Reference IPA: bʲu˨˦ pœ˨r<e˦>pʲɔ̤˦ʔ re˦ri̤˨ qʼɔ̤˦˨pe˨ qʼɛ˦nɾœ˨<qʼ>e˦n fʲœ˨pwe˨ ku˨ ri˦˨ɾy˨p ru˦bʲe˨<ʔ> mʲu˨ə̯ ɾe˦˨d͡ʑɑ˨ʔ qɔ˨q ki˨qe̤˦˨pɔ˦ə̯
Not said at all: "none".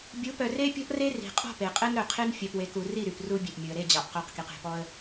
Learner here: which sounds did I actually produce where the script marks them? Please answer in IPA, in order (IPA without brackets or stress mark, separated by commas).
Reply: e˦, qʰ, ʔ